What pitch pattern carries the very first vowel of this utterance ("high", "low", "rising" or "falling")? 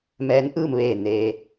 rising